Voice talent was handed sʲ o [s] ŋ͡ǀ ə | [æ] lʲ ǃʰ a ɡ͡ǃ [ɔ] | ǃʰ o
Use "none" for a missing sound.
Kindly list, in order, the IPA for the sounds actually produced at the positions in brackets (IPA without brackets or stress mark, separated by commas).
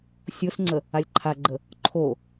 s, a, ə